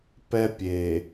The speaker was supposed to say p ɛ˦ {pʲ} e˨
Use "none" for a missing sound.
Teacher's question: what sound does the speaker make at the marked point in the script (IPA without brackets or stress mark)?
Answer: pʲ